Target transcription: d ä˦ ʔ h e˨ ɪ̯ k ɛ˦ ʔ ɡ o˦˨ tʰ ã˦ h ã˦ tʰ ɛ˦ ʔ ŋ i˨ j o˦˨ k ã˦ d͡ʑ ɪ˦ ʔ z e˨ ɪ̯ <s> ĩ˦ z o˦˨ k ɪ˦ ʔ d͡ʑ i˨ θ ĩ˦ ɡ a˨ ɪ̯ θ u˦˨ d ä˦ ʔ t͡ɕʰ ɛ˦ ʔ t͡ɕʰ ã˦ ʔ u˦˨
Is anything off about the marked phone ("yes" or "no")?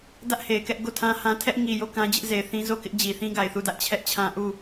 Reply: yes